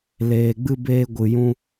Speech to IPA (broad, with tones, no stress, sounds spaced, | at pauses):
l eː˧ ɡ͡b ɨ˦ b eː˦ ɡʷ ɨ˧ j ũ˦